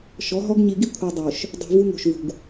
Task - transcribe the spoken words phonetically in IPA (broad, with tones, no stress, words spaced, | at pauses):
ʃɔ˨˦ɦɔ˦ɡ ɲi˨ɡi˦ kʷʰɯ˨dˤo˨ʃ | dˤi̤˨ vu˦ŋo̤˨ʃ vṳ˨ɡ